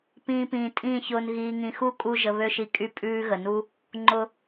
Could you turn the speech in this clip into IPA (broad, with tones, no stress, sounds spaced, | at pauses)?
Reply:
p ĩː˧ p ĩː˨ tʼ ĩː˦˨ ç ʊː˧ n ɣ iː˧ ŋ ĩ˧ x u˦ kʼ u˧ ʒ ə˨ β ø˦ ʃ i˧ kʼ y˦ pʼ ʉː˦ ɣ ə˨ n u˦ | ŋ͡ǃ ʊ˨